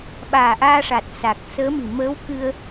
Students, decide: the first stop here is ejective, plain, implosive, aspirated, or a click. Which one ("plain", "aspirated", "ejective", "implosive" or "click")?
implosive